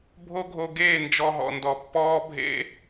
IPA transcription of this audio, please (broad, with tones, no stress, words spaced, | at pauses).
bʱo˦ ɡʱo˧ɡeː˦˨ nd͡ʒɔ˧ɦɔ̰˨ndɔ˨ pːɔː˦bʱḛ˦